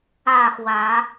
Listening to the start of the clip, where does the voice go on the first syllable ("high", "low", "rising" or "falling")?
falling